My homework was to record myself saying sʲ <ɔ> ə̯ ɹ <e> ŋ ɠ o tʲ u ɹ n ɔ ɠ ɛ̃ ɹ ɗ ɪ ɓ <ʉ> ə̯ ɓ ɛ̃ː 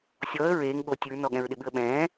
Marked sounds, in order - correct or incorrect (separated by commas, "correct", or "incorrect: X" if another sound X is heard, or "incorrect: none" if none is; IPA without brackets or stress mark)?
correct, incorrect: eː, correct